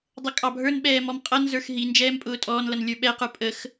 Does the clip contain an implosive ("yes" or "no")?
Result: yes